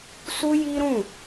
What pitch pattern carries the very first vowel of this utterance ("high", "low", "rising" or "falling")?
high